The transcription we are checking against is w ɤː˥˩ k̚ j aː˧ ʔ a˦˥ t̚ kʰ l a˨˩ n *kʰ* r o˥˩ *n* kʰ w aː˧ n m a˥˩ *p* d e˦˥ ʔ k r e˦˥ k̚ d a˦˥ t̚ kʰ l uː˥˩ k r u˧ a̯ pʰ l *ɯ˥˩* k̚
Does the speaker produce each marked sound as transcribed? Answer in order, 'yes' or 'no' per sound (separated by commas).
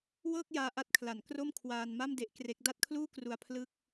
no, no, no, yes